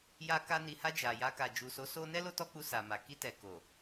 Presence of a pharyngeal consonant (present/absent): absent